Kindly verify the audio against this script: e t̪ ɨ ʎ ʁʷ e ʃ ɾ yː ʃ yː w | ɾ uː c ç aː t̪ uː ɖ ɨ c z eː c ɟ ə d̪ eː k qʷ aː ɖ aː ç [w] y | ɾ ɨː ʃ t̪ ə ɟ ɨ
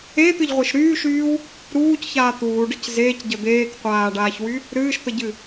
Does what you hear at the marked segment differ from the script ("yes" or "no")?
no